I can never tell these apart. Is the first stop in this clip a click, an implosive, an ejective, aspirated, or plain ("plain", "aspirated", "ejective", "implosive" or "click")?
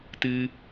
plain